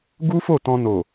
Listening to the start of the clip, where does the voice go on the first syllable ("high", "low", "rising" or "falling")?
high